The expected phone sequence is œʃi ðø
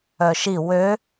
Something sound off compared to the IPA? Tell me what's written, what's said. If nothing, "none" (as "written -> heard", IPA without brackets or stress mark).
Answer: ð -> w